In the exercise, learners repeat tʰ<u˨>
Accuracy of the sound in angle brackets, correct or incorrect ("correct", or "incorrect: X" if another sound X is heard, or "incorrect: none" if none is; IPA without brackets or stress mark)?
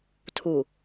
correct